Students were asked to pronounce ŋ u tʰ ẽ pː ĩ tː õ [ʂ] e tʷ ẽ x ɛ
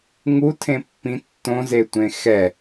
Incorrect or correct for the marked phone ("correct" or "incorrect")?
incorrect